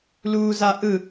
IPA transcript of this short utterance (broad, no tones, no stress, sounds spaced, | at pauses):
l uː z a ʔ ɯ